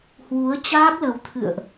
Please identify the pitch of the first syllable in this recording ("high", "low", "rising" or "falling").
rising